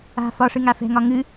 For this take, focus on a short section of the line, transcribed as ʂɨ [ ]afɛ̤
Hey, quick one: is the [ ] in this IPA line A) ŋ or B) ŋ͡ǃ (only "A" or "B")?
A